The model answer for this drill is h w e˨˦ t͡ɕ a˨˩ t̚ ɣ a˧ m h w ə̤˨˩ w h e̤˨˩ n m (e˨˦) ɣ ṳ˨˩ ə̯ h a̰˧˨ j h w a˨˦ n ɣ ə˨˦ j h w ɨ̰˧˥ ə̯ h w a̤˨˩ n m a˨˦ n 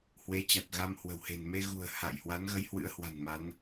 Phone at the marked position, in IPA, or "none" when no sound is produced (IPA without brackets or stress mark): e˧